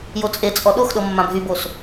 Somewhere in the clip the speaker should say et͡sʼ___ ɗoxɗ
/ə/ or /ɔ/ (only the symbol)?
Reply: ɔ